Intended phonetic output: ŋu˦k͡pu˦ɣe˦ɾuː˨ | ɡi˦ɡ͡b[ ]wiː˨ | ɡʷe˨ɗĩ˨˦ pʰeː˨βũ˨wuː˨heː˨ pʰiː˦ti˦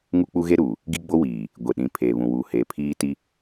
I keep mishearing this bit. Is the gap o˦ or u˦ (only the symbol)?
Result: o˦